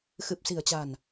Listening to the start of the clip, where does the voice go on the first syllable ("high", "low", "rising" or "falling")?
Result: low